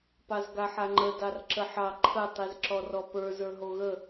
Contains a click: yes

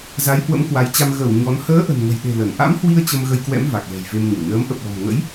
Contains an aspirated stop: no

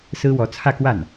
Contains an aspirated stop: yes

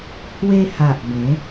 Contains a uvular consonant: no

